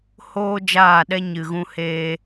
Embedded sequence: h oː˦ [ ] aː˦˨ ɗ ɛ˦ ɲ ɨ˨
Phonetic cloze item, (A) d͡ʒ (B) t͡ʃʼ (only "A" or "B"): A